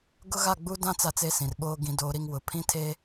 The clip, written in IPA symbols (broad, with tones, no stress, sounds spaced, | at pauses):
ɡ ʊ˦ ɣ a˦˨ ɡ͡b u˦ d ã˦ t͡s a˦ t͡s e˦ s ĩ˨ r ɓ oː˦ ɡ ĩ˨ d oː˨ ɾ i˨ ŋ w ʊ˨ pʰ ĩ˦ tʰ e˦